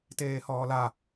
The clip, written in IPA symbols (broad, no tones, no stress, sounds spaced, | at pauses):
t eː h ɔː l a